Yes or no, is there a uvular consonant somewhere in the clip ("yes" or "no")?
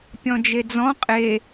yes